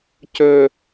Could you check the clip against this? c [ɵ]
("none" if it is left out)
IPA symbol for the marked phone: ɵ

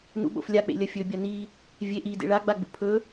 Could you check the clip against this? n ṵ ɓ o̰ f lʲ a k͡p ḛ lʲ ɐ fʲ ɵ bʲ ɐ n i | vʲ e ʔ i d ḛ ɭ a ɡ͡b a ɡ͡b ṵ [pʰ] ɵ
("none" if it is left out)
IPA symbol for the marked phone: pʰ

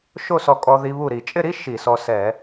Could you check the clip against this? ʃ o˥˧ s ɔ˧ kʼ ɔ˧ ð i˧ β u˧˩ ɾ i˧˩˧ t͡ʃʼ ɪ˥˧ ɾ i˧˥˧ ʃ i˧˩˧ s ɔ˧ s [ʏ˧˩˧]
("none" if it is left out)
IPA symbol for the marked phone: ɛ˧˩˧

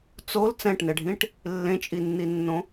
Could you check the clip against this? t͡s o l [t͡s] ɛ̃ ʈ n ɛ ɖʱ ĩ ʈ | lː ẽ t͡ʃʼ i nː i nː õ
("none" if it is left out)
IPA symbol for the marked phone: t͡s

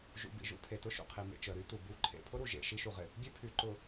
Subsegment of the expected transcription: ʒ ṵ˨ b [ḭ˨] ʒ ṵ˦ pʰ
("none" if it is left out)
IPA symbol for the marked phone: ḭ˨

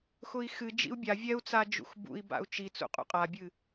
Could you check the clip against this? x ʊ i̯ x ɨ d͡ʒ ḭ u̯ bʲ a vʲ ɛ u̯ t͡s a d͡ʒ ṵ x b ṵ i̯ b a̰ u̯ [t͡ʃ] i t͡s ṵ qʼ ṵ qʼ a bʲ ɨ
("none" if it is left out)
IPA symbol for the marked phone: t͡ʃ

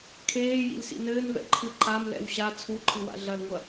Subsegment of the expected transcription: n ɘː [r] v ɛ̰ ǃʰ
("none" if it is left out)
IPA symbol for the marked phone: n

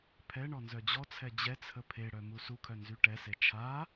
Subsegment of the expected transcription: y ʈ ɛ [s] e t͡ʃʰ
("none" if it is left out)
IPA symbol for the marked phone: s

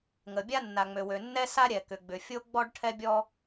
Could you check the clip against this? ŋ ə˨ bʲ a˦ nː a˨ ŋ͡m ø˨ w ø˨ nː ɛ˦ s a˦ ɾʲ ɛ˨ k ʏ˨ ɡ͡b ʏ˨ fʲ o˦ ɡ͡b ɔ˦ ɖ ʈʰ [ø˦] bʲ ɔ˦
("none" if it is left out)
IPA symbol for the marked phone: ɛ˦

